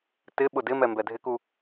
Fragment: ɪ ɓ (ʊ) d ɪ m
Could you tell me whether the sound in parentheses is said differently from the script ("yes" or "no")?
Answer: no